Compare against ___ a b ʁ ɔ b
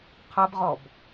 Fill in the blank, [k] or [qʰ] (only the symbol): qʰ